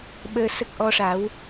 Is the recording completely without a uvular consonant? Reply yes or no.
yes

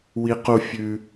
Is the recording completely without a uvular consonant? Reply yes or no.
no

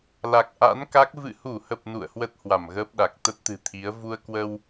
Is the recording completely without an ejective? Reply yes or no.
yes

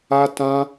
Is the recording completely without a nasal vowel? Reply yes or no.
no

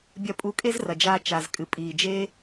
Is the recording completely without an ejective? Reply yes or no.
no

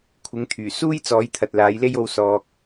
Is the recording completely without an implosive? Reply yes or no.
yes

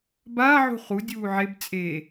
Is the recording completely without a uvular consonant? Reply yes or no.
no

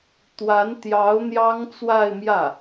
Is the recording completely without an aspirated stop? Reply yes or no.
yes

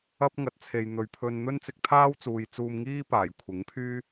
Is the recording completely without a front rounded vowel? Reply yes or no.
no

